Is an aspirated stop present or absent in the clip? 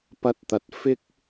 absent